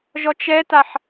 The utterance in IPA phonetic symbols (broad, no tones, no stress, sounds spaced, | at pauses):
ʒ ɔ t͡ʃ ɛ t a ħ